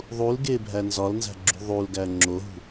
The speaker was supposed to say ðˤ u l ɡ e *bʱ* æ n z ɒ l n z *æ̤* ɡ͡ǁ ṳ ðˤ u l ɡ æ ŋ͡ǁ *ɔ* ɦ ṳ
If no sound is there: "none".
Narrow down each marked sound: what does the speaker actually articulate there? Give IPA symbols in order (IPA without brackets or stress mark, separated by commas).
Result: bʱ, æ̤, o